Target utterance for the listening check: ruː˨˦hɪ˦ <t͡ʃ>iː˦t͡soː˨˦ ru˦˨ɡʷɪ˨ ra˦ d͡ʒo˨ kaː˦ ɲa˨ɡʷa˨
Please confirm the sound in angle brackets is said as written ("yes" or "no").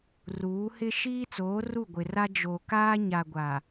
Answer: no